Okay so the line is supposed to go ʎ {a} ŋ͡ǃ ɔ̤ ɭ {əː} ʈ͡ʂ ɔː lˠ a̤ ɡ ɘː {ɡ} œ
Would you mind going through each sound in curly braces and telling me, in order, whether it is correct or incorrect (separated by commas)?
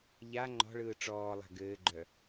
correct, incorrect, incorrect